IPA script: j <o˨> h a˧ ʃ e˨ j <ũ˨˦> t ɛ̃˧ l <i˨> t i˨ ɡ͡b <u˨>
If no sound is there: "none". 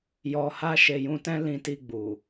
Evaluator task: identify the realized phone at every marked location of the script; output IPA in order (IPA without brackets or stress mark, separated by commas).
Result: ɔ˨, ũ˨, ĩ˨, u˨